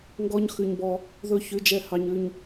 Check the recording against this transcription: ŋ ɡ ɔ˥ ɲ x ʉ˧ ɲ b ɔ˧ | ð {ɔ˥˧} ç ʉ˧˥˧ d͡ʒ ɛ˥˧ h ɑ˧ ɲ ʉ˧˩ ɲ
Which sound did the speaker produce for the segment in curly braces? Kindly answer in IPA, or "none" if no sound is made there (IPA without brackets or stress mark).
ɵ˥˧